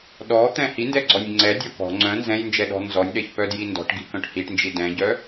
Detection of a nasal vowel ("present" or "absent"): present